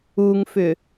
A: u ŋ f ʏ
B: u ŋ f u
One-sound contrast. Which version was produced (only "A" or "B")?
A